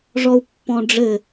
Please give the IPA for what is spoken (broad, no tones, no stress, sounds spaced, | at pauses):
ʐ ɔ u̯ pː ɔ̃ ɖ͡ʐ ɘ